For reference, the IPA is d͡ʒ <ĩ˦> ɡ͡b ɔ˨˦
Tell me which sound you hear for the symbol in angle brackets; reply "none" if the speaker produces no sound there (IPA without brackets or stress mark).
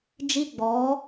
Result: i˦